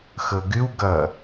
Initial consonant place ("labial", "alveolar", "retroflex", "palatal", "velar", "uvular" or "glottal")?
velar